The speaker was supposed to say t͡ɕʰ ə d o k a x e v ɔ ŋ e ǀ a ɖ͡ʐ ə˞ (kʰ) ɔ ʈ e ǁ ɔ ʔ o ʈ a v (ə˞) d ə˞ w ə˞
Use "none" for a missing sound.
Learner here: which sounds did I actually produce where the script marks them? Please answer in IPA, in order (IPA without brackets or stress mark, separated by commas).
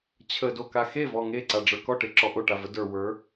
k, ə